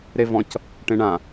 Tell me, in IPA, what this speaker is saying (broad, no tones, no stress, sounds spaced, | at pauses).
ɾ e v ɔ̃ c | ʈ ẽ ɳ ã